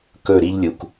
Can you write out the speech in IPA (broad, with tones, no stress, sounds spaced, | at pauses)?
k ɵ˦˨ ɾ i˦ ʎ lʲ u˨ k